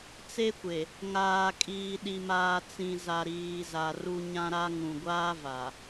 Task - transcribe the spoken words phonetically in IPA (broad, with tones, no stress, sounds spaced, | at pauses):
t͡s e˦ kʷ e˨ | ŋ aː˨ kʼ iː˨ ɗ i˨ m aː˨ t͡s ĩ˨ z a˨ ɾ iː˨ z a˨ r u˦ ɲ ã˦ ɾ a˦ ŋ ũ˨ ɡʷ aː˦ v a˨